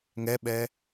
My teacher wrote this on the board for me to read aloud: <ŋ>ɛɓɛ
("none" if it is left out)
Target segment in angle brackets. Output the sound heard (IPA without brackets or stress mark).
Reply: ŋ